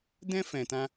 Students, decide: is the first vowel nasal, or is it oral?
nasal